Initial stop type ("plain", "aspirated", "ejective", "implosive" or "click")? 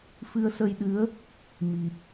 implosive